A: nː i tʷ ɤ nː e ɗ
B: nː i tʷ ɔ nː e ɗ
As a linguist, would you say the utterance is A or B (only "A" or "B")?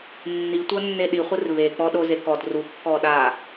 A